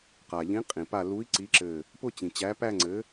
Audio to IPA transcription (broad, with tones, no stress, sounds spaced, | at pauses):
q a˩ ʎ ĩ˨˥ qʼ ĩ˩ p a˧˩ l u˨˥ i̯ ǀ i˨˥ ǁ ɘ˧˩ | p ʊ˥˧ t͡ɕ ĩ˩ t͡ɕ æ˨˥ p æ˥˧ ŋ͡ǀ ɘ˨˥